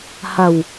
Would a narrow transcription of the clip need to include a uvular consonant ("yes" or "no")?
no